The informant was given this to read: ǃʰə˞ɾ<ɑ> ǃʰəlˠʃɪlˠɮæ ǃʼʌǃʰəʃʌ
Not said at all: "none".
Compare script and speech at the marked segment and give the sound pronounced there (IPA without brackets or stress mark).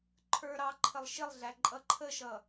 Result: ɑ